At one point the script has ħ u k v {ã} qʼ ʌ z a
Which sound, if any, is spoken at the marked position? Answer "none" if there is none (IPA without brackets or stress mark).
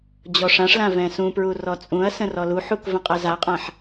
ə̃